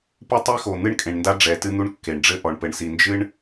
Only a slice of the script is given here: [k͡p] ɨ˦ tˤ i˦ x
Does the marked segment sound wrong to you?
yes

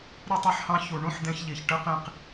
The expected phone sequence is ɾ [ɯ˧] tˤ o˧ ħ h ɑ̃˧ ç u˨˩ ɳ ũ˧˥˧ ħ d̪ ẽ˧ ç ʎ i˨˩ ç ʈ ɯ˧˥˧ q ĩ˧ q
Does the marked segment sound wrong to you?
no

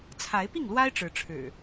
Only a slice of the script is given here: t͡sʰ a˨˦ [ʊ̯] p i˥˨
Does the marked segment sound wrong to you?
yes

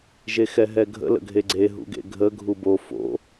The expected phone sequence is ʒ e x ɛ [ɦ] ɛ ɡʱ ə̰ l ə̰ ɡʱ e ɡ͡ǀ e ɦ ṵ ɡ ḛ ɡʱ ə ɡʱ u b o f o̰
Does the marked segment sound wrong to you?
no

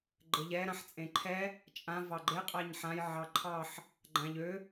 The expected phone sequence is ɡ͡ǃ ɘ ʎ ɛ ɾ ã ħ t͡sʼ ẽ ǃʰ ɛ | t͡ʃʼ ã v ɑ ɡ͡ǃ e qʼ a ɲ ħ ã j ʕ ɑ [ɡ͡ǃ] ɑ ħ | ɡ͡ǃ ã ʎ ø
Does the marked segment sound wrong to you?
yes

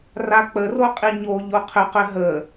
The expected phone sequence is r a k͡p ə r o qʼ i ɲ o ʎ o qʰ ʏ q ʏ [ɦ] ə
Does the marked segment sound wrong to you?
no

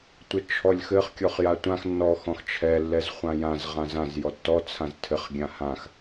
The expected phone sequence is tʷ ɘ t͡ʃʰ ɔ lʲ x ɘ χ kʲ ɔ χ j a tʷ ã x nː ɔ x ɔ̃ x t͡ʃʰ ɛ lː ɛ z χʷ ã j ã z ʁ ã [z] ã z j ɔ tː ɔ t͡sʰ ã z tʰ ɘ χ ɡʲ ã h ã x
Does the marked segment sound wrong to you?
no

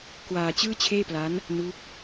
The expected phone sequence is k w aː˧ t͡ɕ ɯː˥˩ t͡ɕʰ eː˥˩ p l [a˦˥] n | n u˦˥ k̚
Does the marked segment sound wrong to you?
no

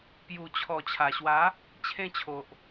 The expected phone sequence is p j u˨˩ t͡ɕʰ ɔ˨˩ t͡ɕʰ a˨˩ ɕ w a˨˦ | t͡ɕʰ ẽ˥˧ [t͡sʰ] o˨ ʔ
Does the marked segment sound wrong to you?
yes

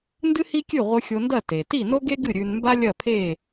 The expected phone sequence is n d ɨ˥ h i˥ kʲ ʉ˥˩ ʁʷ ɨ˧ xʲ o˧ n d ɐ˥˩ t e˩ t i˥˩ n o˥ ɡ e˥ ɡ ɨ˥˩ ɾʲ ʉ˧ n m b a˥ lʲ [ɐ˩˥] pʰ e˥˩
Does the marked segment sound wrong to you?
yes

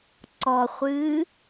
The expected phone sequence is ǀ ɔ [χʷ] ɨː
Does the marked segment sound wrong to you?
no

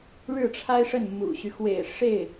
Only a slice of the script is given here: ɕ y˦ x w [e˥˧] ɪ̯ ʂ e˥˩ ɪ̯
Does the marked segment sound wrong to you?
yes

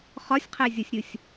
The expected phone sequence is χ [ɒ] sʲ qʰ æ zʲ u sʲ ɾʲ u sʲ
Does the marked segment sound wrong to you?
no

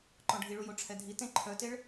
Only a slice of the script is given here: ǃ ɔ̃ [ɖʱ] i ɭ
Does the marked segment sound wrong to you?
no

